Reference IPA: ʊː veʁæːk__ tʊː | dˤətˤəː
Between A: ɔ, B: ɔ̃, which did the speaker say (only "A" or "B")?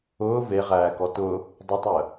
A